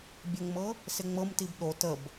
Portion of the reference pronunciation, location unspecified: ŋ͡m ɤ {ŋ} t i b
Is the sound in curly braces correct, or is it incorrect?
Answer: incorrect: m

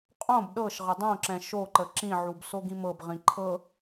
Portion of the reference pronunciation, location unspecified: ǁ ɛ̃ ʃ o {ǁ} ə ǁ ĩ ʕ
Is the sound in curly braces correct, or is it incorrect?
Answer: incorrect: ǃ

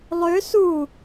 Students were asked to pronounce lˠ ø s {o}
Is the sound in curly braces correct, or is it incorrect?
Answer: incorrect: u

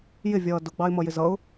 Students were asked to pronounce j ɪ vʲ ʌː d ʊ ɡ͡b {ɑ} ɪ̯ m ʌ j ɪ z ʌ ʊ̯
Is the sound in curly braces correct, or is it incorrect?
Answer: correct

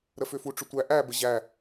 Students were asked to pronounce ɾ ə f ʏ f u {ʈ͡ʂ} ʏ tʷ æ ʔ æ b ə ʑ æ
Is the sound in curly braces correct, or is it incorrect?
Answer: correct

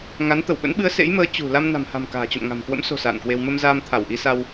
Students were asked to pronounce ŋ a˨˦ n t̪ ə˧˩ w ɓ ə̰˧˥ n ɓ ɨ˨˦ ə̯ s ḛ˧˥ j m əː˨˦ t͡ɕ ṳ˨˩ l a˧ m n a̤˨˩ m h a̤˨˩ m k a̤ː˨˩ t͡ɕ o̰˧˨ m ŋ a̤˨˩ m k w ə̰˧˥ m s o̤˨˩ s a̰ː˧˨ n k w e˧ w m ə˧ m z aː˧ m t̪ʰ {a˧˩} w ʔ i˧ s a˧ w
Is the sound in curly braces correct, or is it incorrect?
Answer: correct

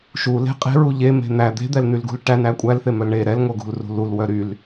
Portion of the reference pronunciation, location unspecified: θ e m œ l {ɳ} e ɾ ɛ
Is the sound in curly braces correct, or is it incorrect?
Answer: correct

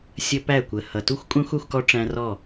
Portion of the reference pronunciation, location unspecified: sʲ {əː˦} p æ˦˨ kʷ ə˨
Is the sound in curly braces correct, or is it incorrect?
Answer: incorrect: ə˦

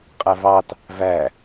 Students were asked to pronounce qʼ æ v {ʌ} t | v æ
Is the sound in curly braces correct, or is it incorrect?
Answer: incorrect: ɑ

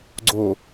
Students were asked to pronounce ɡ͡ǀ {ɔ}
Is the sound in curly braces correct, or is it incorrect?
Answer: incorrect: o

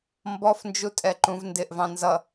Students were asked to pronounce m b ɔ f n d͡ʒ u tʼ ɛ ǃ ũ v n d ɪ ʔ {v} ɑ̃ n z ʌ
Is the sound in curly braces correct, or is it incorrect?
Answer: correct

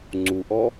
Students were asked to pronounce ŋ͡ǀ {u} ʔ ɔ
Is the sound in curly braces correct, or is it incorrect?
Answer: correct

